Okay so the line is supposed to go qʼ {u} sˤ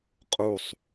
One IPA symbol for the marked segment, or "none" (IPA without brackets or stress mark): u